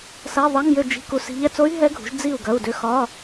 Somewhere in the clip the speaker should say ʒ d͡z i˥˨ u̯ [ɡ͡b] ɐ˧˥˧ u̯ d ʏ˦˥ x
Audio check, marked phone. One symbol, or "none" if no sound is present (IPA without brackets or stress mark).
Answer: ɡ